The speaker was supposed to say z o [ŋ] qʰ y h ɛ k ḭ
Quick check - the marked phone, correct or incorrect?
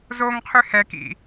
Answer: correct